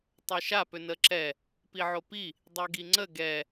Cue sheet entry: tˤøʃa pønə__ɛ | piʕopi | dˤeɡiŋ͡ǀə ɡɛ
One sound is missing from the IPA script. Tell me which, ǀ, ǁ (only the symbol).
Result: ǁ